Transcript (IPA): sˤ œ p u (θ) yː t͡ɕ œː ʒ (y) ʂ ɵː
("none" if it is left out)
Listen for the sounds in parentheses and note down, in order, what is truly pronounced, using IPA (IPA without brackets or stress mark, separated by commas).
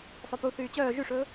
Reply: θ, y